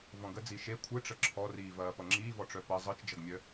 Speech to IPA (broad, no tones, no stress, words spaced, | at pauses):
vɔ̃ɡə d͡ziʃe kʷʰɯʈ͡ʂə ǁʰɔriːvɐː pʌŋ͡ǁiːvɔʈ͡ʂœ pɐ zˤɯt͡ʃd͡ʒʌɡmʲœ